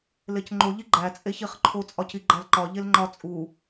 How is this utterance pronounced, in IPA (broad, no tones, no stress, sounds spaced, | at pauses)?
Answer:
l e c ŋ͡ǃ o ʎ i ɡ͡ǃ æ t͡sʼ e ç i χ ǃʰ o t͡sʼ ɒ c i ɡ͡ǃ æ l ǃ ɒ ʎ e l ŋ͡ǃ ɒ t͡sʼ u